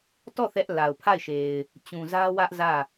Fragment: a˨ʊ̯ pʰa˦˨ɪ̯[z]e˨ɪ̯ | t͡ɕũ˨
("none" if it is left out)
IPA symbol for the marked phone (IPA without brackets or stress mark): ʃ